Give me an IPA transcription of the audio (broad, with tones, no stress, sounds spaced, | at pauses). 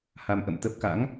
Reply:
h a˧ m ʔ ə̰˧˨ m t̪ ə˦˥ p̚ k a̰˧˥ ŋ